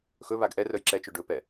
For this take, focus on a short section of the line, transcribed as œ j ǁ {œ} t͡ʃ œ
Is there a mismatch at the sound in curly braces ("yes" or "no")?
yes